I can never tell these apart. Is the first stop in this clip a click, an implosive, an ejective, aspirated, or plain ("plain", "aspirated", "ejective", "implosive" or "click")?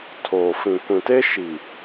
aspirated